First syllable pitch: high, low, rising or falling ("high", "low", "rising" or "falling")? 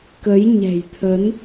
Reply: rising